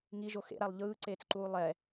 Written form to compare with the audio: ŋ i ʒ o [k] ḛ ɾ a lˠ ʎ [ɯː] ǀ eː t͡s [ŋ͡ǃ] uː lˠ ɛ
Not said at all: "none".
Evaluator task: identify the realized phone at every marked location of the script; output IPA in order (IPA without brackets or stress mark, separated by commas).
x, ɯː, ǃ